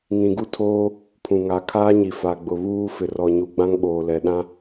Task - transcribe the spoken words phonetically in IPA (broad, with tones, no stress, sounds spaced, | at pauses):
ŋ ĩ˨ ɡ u˦ tʰ oː˦ | pʰ ũ˨ ŋ a˨˦ kʰ aː˦ ɲ i˨ f a˨ ɡ͡b ʊ˨ β uː˦ f ɪ˨ r ɔ˨ ɲ u˨ ɡ͡b ã˦ ŋ ɓ oː˨ l ɛ˨ ɗ ã˦